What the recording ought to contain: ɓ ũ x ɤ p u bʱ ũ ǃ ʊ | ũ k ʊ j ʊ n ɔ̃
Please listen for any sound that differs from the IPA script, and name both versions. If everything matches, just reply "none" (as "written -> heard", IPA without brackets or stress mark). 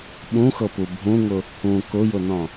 ǃ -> ŋ